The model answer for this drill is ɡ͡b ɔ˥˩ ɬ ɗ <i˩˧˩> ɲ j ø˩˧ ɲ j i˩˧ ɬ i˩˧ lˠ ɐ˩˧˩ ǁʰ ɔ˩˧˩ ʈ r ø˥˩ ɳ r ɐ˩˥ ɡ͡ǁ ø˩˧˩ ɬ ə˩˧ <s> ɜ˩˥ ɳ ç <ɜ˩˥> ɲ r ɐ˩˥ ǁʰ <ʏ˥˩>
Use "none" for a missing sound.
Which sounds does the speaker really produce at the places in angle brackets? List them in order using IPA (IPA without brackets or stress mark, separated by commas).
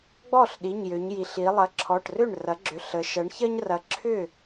i˩˧˩, ʃ, ɜ˦, ʏ˥˩